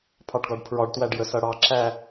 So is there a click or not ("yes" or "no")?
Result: yes